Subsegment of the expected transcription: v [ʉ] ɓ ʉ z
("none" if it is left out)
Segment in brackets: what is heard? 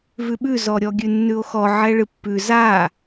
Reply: ʉ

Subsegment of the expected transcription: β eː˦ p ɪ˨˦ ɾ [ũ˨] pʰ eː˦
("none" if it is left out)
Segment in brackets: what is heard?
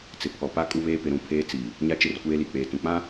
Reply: ũ˨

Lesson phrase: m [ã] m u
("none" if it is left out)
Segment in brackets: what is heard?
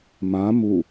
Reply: ã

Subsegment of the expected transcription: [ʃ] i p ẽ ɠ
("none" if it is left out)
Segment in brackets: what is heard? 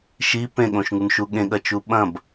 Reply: ʃ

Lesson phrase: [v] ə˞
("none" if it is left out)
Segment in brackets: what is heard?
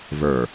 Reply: v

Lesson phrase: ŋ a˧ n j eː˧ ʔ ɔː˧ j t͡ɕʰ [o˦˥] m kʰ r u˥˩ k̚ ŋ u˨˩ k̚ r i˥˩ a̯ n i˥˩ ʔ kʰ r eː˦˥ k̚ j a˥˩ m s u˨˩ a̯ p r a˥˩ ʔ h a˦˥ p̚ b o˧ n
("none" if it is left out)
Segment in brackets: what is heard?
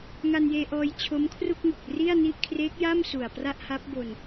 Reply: o˦˥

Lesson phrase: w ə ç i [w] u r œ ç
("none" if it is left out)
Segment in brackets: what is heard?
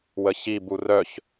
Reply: b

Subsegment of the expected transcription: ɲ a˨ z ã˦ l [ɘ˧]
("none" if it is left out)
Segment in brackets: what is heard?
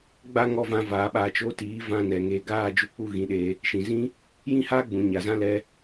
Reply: ɛ˧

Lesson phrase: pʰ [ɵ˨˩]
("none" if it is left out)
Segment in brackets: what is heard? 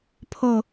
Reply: o˨˩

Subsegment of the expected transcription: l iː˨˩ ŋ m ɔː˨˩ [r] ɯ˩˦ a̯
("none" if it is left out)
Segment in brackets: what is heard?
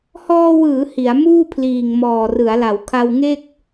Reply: r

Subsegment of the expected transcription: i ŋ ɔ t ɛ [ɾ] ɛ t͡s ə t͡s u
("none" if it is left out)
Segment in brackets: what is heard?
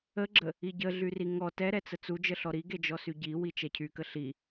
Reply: ɾ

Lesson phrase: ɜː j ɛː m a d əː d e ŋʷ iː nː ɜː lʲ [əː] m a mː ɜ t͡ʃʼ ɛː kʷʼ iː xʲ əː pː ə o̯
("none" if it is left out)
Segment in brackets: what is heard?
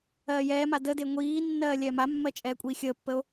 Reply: ɛː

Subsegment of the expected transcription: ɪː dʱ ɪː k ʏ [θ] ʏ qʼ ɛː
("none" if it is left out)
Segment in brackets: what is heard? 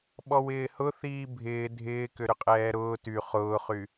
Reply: ɾ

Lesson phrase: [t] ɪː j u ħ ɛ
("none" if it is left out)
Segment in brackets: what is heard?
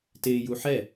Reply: t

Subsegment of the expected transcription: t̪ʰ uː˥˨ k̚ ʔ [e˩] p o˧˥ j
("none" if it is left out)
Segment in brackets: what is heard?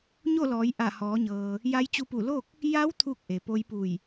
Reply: e˩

